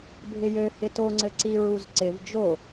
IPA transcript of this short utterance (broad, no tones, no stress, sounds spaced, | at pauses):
bʱ ɪ j ø h ɪ t o ŋ͡ǀ ɘ ǀ i ɹ u z ǀ ɪ v d͡ʒ o